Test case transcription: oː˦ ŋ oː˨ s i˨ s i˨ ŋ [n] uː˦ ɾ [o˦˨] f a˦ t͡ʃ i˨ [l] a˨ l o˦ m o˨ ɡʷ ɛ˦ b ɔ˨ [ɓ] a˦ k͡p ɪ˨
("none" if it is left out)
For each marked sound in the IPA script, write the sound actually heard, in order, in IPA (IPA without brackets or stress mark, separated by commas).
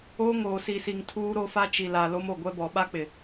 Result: tʰ, o˦, l, ɓ